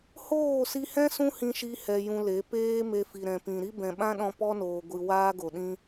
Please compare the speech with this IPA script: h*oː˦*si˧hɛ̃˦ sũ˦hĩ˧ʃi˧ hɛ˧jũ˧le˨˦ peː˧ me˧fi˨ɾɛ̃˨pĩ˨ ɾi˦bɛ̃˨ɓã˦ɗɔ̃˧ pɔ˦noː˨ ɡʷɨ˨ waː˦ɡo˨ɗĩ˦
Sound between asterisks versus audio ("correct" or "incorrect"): incorrect